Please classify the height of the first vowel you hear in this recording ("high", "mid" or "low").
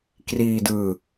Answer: high